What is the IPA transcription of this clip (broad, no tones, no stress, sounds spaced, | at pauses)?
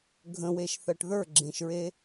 ɡʱ ə̃ w e ʃ θ ɜ ʈ ð ə˞ ɡ͡ǁ ẽ ʃ ɹ e